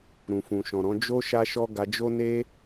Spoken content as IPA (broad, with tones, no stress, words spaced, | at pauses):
ɾũ˨fũ˨ʃɔ̃˨ɾɔ̃˨˦ d͡ʒo˦ ʃa˧ʃɔ˧ ɡa˧d͡ʒo˦ ne˦